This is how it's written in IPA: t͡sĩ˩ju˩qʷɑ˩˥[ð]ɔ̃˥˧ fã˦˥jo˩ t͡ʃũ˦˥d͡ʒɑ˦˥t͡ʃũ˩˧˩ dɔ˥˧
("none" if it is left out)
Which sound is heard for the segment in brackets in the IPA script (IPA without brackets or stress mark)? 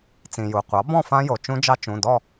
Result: b